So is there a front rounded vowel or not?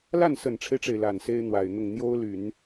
yes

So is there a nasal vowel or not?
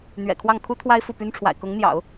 no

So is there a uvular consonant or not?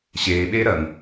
no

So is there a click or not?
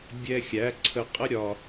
yes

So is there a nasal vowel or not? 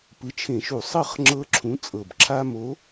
yes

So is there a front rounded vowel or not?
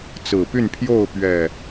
yes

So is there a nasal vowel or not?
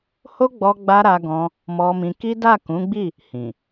yes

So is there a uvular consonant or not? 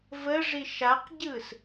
yes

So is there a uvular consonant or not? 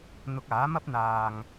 no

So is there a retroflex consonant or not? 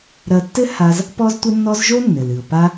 no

